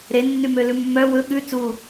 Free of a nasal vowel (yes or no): yes